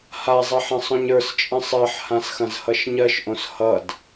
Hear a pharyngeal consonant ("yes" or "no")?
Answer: yes